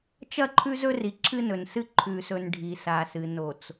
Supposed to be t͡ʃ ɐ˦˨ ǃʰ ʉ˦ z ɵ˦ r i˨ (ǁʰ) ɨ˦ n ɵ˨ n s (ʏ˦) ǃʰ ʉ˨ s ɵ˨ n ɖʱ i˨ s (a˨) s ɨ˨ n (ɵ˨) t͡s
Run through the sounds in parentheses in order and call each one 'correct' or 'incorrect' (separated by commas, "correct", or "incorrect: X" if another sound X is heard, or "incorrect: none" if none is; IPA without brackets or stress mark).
correct, incorrect: ɨ˦, correct, incorrect: o˨